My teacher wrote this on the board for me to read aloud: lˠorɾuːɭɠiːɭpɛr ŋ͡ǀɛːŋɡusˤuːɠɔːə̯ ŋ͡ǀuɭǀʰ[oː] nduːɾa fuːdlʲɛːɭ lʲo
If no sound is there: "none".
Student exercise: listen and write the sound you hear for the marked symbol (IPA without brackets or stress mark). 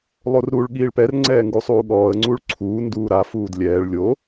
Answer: uː